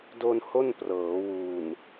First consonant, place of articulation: alveolar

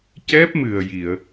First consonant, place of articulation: palatal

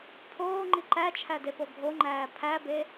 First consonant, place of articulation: labial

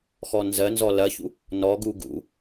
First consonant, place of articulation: velar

